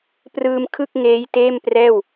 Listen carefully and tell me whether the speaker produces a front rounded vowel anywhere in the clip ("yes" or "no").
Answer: no